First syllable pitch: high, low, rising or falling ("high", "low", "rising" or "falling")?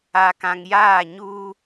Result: low